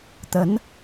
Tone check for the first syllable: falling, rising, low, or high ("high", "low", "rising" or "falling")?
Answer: rising